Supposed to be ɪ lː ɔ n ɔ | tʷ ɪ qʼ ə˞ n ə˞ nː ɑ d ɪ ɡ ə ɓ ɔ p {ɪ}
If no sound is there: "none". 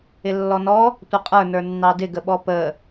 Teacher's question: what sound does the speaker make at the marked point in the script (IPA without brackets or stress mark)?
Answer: ə